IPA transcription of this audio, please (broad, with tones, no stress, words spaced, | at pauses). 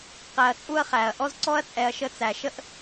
qæ˨ɐ̯t͡sʼu˦ɐ̯χæ˩ɐ̯ ʔɔ˥zǀɔ˥ɐ̯t͡sʼɛ˨ɐ̯ʃə˦ t͡sæ˩ʃə˥ʔ